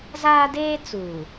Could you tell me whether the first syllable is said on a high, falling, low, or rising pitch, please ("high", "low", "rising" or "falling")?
high